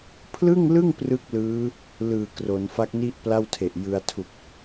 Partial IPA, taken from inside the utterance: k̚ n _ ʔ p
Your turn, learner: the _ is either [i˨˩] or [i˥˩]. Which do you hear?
i˥˩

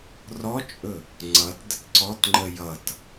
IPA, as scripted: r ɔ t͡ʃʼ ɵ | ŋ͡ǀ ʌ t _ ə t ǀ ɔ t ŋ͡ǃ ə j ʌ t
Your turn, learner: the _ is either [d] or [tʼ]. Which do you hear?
d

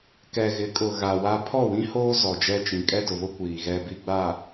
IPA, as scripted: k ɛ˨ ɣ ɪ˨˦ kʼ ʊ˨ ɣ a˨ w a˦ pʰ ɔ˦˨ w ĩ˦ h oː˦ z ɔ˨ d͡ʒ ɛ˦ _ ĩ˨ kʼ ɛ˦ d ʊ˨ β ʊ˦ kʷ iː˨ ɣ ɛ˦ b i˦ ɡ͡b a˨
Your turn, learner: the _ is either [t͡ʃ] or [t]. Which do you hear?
t͡ʃ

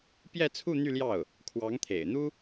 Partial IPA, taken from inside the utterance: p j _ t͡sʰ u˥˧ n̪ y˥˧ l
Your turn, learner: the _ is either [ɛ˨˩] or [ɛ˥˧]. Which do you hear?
ɛ˥˧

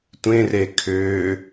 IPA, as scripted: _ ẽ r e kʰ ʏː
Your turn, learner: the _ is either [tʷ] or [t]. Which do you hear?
tʷ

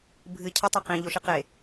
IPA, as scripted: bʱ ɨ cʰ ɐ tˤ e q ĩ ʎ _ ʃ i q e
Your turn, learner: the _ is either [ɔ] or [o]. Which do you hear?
o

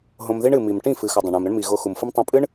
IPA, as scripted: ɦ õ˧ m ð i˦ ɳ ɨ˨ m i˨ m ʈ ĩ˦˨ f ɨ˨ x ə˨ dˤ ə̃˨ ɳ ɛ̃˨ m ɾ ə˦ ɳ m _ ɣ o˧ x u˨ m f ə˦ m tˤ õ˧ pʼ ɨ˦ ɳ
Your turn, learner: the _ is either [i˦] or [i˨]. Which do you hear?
i˨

